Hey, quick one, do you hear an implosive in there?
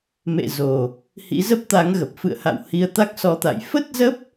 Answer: no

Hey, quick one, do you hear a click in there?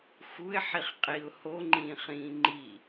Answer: yes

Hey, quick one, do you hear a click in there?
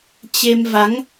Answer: no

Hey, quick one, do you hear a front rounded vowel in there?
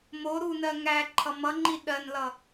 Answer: no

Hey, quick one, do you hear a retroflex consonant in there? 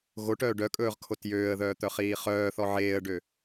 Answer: yes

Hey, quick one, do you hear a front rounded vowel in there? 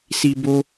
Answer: no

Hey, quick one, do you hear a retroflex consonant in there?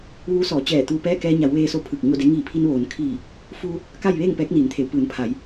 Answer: no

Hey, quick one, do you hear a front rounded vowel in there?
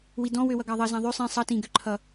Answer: yes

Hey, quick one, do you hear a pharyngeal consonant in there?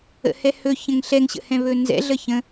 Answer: no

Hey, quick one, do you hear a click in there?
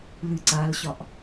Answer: yes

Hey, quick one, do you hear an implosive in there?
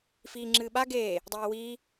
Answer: yes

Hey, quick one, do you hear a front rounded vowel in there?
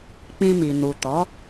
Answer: no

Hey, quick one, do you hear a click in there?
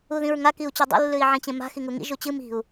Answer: no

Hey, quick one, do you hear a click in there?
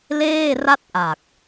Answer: no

